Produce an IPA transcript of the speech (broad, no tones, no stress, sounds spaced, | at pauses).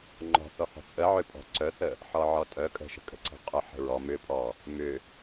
ŋ͡ǃ ɔ̤ θ ɔ h ɔ̤ t͡sʼ ə ʕ ʏ pʼ ɔ̤ ǀ œ θ ə | ħ ɔ ʕ ɔ tʼ œ kʼ ə̤ ʃ ə̤ kʼ ə̤ ǀ ə̤ qʼ ʊ ħ ə̤ ɹ ɔ m ʏ pʼ ɔ | m ʏ